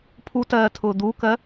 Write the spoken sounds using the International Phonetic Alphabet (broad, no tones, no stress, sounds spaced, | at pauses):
pʰ u t ɜː tʰ ʊː d̪ u k ɜ